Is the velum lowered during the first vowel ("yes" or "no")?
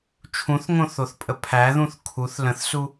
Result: yes